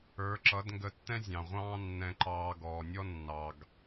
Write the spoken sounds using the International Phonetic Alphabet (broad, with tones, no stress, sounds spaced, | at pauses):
ə˞˨˦ ǁ ʌ˨˦ d ŋ ɡ ə˧ tː ɛ̃˦ zʲ ɑ̃˨ ʁʷ ɑ̃ː˦ nː ɛ̃˧ ǃ ɑː˧ ɡ ɔː˨ nʲ ɔ˦ nː ɑ˧ ɡ